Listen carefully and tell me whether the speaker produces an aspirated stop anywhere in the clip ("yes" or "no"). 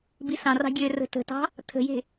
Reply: yes